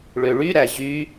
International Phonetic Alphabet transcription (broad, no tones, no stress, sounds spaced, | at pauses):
ɭ ø ɭ y ɾ æ ʑ y